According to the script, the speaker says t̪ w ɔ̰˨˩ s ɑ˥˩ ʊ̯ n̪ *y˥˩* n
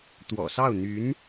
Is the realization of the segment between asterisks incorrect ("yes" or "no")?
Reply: yes